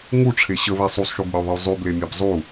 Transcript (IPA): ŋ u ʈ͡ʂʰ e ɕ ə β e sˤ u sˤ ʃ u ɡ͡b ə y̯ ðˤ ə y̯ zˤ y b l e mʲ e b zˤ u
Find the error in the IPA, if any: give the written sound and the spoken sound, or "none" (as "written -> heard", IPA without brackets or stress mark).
none